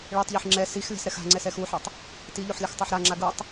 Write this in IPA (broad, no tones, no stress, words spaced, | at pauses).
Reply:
ɭitˤʎɯħ ŋ͡ǁɛ sixlʲa̤sɾɛx a̤ŋ͡ǀɛsɛx uħʌtˤ | tiʎoħlʲʌxtˤaħ ɾaŋ͡ǁa ɡutˤ